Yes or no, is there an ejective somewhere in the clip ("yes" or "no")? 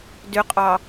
yes